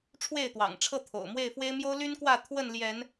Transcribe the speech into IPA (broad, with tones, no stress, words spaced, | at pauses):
ʈ͡ʂʰwe˥˨ɪ̯t̪wɑ̰˨˩ŋʈ͡ʂʰɤ˥˨t̪ʰo̰˨˩ʊ̯ mwe˥˨ɪ̯fwe˦ɪ̯ mjo˦ʊ̯ly˦nkwä˥˨ t̪ʰwə˥˨nljɛ˨˦n